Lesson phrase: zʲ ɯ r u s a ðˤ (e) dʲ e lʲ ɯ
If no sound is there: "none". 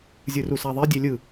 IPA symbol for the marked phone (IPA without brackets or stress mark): e